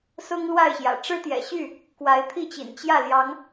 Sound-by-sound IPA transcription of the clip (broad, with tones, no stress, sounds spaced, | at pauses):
s ʊ˦ ŋ l w a˥˨ ɪ̯ ɕ j ä̰˨˩ ʈ͡ʂ ɻ̩˦ t̪ j ɛ̰˨˩ ɕ y˥˨ | k w a˨˦ ɪ̯ t̪ʰ i˥˨ t͡ɕ ḭ˨˩ n t͡ɕ j ä˥˨ l j ɑ˨˦ ŋ